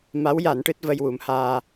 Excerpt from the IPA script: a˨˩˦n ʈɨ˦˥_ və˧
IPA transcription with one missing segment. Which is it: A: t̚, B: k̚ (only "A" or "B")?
A